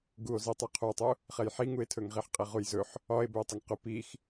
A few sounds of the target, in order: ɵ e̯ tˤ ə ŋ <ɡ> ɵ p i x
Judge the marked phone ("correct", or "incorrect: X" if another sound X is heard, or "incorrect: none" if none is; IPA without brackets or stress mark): incorrect: q